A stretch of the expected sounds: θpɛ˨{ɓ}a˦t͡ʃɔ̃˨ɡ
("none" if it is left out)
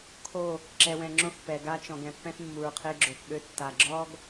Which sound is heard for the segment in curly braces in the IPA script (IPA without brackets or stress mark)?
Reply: ɡ